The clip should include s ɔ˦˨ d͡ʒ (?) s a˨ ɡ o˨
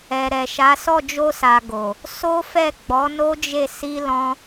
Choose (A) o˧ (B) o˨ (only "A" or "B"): A